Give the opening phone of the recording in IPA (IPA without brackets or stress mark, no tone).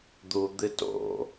d̪